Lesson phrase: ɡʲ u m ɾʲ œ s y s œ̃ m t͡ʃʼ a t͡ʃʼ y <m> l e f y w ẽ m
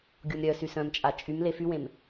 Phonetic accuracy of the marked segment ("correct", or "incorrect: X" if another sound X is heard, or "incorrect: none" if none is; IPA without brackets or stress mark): correct